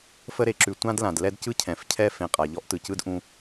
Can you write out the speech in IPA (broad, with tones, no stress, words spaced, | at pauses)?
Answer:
fə˦ɾe˩ǁʉ˨ tʷã˥dlã˩d lɛ˦dcɯ˥cʰɛ̃˩f cʰɛ˥ fẽ˨qʼa˩ ʎɔ˥ʔtɯ˨cɯ˥d ʔũ˦